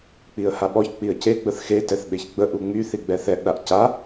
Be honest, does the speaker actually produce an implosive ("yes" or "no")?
yes